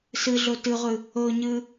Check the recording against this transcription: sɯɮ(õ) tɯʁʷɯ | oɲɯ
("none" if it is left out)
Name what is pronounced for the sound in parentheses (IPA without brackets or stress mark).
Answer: o